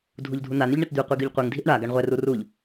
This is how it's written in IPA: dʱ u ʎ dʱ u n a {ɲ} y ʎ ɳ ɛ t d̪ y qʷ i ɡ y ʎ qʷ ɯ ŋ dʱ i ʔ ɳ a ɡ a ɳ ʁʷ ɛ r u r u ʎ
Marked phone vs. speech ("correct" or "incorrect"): incorrect